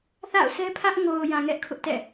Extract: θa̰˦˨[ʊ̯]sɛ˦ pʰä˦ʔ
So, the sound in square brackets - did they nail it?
yes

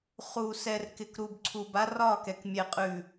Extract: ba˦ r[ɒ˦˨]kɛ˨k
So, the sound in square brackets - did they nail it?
yes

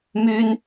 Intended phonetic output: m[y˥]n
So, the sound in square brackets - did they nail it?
yes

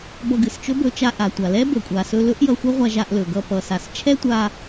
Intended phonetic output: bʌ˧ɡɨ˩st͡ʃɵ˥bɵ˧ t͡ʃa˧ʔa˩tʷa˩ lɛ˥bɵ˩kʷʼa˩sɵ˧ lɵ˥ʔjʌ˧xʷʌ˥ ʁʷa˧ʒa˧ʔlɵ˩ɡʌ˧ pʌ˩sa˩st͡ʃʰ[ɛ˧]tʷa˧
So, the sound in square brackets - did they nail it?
no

